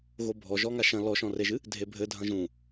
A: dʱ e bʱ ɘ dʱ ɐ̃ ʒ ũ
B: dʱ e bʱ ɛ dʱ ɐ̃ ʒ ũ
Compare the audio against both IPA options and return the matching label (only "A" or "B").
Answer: A